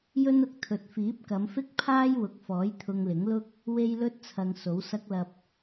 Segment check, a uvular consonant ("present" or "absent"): absent